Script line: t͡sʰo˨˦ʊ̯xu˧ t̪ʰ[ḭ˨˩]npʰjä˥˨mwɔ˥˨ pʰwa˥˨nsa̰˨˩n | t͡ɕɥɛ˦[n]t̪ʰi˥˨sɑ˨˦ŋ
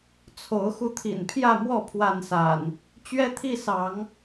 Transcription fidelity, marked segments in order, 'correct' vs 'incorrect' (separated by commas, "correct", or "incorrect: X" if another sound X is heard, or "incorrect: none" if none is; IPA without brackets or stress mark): correct, incorrect: none